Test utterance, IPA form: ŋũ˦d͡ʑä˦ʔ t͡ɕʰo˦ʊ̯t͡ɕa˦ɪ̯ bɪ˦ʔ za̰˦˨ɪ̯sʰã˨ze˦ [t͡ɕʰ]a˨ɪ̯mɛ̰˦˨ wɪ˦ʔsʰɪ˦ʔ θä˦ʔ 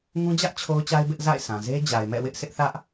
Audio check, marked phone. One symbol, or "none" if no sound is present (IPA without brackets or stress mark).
d͡ʑ